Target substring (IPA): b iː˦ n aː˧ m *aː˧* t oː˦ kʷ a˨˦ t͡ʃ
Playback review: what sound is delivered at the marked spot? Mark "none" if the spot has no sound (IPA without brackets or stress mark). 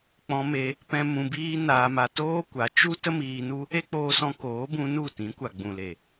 a˧